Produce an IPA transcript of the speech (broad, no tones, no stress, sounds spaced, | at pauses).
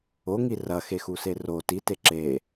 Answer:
o ŋ i r ɐ x e x u s e r o t i t e ǁ e